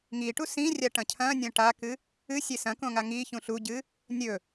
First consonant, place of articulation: velar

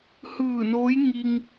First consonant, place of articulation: glottal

